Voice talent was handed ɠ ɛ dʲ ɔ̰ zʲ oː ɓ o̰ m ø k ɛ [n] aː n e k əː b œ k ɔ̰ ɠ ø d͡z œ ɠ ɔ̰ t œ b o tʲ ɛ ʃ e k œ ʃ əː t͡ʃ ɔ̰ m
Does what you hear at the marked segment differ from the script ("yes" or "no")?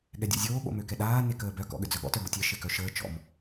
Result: yes